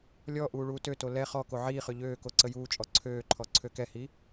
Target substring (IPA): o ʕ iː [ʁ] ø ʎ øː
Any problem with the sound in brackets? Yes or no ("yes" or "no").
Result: yes